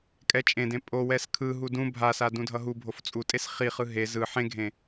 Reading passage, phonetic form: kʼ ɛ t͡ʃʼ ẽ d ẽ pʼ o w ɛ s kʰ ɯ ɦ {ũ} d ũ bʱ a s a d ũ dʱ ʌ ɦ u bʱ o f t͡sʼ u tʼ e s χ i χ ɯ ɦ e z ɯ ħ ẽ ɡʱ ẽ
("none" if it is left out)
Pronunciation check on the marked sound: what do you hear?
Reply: u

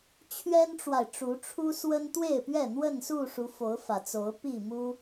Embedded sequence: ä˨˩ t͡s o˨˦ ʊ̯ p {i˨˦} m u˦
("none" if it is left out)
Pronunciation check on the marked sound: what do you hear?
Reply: i˥˨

